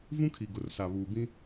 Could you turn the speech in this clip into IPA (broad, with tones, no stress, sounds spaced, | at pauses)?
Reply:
v ũ˦ kʰ i˨ ɡ ʊ˨ r s a˨ β uː˨ b ĩ˦